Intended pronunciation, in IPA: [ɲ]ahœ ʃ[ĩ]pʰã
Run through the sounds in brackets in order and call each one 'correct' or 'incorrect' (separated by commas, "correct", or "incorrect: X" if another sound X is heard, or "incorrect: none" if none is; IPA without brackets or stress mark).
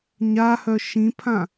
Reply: correct, correct